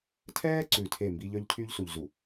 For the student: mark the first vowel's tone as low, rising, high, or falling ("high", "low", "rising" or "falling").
high